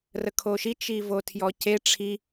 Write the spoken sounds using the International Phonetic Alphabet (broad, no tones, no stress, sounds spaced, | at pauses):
r ə kʰ o ʃ i t͡ʃ i v o tʰ j ɔ c e ʈ͡ʂʰ i